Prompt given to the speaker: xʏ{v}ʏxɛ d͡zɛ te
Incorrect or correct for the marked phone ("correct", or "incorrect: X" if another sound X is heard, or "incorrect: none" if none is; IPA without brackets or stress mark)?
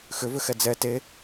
correct